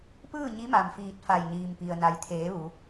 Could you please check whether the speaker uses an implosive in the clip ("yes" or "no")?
no